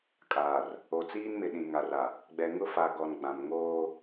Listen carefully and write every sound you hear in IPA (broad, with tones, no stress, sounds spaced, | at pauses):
kʼ aː˨ r | o˨ t͡s iː˦ n m ɪ˨ ɗ ĩ˨ ŋ a˨ r a˨ | ɡ͡b ɛ˨ ŋ ʊ˦ f a˨ ɡ ɔ˨ n ɡ͡b ã˨ m ŋ oː˦